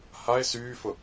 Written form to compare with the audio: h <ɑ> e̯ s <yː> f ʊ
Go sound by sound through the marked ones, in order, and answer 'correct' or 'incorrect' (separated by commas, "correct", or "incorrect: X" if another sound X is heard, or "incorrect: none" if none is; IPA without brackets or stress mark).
incorrect: a, correct